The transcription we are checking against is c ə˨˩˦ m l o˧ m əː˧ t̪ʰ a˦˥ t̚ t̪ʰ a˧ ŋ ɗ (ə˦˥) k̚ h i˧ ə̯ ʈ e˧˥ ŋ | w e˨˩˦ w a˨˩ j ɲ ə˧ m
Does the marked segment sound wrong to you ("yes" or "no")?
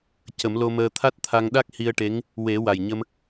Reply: yes